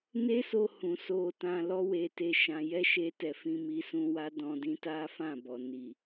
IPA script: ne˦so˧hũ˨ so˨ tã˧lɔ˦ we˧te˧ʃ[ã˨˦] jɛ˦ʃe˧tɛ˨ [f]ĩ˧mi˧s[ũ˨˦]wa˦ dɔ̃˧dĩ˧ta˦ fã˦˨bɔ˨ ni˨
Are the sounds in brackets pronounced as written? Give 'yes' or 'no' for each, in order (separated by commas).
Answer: no, yes, no